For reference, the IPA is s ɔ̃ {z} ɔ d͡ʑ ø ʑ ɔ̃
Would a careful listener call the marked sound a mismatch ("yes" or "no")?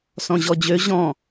yes